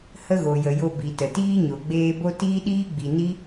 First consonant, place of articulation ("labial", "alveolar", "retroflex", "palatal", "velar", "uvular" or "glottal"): glottal